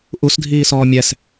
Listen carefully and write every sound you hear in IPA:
ʔusdʱiːsɔː mʲɛs

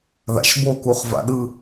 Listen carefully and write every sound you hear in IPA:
ða̰ʃbo kuχva̰ɗɯ

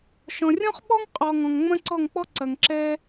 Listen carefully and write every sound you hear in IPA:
ʃɔ̃˨rʲɔ̃˦χ ɓɔ˦ŋqʼɔ˨ ŋɔ̃˨ŋŋ͡mɐ̃˦ǀɔ˦˨ŋk͡pɔ˦ ǀɐ˨ŋǁɛ˧

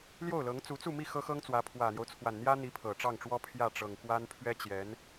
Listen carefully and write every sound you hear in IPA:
ljo˥˩ʊ̯lɤ˧˥ŋ t͡su˧˥t͡su˥˧mi˥˩ xɤ˥xɤ˥ŋt͡swä˧˥ pʰwä˨˩n̪jo˦ʊ̯t͡sʰwa˨˩n n̪jä˥n̪i˧˥pʰɤ˨˩ ʈ͡ʂɑ˥˩ŋʈ͡ʂwɔ˥ pʰjä˥˩ʈ͡ʂɤ˨˩ŋ kwa˥npʰɥɛ˥t͡ɕjɛ˧˥n

